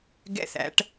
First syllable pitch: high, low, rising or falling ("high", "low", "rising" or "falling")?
falling